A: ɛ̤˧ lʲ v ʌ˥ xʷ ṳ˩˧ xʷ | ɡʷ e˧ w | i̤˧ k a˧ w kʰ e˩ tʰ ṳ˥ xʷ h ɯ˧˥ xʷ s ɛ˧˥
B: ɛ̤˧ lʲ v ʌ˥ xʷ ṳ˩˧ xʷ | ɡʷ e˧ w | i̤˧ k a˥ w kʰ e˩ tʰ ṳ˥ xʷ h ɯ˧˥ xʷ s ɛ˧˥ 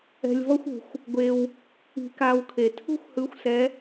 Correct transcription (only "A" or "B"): A